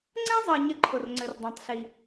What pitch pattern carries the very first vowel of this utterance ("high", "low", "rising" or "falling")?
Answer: high